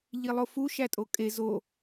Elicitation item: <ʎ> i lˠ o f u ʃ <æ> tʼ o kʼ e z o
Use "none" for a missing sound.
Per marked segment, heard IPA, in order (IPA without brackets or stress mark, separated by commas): ʎ, æ